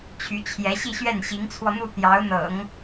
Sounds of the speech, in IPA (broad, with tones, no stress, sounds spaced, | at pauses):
t͡ɕʰ y˧˥ t͡ɕʰ j ɛ˧˥ ɕ i˥˧ ɕ ɥ ɛ˥˩ n ɕ i˧˥ ŋ t͡sʰ w ɔ˧ n̪ u˥˩ t̪ j ɑ˧˥ ʊ̯ n̪ ɤ̰˨˩˦ ŋ